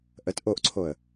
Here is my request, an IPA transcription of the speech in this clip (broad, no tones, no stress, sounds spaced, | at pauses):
ʔ ə t ʔ o ʔ ǀʰ o ə̯